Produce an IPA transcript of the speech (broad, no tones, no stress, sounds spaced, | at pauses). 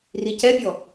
r i c ɛ pʲ ɔ